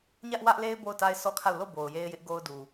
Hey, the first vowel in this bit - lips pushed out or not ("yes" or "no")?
no